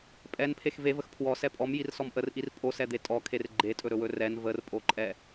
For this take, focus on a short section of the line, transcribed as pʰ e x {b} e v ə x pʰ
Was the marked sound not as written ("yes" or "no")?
yes